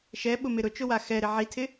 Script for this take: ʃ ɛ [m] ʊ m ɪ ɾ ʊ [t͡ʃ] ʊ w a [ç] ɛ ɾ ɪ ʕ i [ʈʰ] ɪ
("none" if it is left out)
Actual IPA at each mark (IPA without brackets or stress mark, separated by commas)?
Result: ɓ, t͡ʃ, x, tʰ